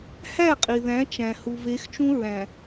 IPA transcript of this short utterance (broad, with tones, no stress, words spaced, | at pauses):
hæ˦˨qʼi˨ðæ̃˨˦ t͡ʃæ̃˨ hu˨ve˨˦xt͡ʃũ˦ɹæ̃˨